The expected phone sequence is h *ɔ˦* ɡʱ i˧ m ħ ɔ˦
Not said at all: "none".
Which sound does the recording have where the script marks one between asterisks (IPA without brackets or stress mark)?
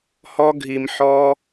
ɔ˦